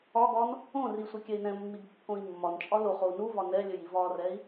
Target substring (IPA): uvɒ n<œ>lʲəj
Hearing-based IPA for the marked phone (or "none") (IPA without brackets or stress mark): ɛ